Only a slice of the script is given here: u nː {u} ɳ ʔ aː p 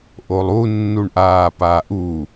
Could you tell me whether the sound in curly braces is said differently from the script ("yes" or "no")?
no